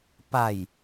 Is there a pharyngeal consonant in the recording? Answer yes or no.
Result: no